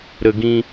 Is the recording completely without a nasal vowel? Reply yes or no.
no